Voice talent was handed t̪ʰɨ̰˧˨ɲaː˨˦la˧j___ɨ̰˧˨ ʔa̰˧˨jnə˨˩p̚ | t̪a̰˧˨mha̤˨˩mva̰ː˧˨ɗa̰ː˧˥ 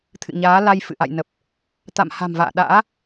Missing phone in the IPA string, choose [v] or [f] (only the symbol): f